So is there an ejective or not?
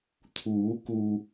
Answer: no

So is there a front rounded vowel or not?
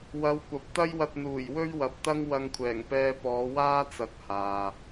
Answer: no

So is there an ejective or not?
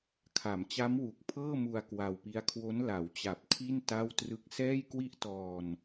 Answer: no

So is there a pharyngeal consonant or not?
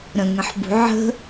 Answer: yes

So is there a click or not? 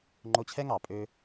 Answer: yes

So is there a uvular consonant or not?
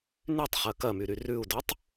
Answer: yes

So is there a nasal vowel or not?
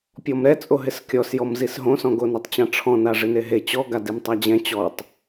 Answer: yes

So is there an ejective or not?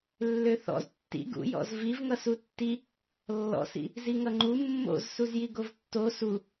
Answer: no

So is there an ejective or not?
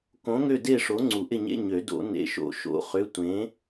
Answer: no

